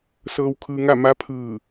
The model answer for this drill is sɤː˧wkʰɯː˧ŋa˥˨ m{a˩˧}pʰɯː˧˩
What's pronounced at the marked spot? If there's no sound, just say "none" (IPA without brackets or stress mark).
a˧˥